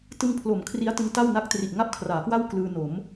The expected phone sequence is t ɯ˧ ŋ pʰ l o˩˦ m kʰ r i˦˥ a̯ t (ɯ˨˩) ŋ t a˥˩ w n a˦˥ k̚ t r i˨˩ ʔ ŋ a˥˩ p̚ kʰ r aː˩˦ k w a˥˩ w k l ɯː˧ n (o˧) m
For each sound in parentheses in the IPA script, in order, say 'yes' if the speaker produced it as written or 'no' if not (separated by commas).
no, no